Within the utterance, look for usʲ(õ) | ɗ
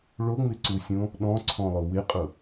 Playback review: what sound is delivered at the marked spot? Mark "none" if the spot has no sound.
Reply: õ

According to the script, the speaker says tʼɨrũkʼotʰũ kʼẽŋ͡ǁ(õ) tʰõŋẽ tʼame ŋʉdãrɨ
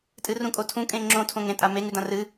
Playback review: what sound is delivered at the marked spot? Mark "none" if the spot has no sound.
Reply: õ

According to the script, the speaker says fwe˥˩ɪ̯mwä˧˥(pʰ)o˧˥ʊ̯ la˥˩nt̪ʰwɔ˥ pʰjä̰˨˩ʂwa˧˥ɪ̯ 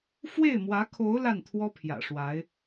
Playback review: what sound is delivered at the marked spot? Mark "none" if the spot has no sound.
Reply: kʰ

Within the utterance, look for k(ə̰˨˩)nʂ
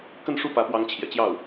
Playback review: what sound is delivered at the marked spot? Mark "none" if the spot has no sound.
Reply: ə˥˧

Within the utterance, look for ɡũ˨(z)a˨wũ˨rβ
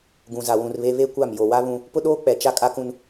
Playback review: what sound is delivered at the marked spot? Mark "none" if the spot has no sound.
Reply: z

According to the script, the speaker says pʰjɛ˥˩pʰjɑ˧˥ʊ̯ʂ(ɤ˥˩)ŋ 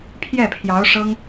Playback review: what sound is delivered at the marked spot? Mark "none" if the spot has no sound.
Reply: ɤ˥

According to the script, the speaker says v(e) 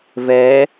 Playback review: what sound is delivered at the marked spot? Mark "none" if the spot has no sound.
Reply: ɛ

